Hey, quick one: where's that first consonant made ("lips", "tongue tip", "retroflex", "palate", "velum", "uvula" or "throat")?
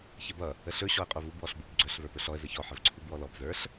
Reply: palate